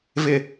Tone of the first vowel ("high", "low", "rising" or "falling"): falling